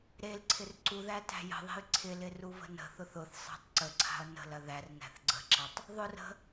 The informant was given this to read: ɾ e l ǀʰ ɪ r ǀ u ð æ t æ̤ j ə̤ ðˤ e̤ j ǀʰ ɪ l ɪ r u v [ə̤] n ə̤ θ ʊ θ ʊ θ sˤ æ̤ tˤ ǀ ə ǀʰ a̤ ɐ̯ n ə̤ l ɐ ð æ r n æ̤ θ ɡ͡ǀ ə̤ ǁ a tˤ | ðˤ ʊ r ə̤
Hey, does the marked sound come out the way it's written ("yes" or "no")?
yes